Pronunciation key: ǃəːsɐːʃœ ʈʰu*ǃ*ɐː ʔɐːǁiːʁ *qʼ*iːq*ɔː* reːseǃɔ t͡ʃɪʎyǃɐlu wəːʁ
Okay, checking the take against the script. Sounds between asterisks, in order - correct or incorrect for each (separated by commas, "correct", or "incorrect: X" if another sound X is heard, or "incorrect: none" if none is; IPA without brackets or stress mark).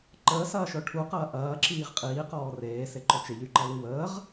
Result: incorrect: q, correct, correct